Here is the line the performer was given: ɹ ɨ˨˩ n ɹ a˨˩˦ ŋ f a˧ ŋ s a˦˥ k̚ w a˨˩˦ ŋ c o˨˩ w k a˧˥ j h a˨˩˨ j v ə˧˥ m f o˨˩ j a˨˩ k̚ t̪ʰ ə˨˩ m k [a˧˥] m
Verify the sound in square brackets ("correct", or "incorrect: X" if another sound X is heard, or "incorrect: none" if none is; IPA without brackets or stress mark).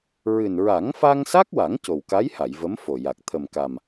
incorrect: a˨˩